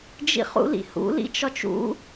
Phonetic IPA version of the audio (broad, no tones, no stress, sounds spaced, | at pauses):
d͡ʒ ḭ χ ṵ l ḭ h ṵ l ḭ t͡ʃ ɒ t͡ʃ ṵ